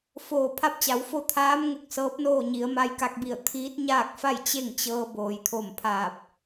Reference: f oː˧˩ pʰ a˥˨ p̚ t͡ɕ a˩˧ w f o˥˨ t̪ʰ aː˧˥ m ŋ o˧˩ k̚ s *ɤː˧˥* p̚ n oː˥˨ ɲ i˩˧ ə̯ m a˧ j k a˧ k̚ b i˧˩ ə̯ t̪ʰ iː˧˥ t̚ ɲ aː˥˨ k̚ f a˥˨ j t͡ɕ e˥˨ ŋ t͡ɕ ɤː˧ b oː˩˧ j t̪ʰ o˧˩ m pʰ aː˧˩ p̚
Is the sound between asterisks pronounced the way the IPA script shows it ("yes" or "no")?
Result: yes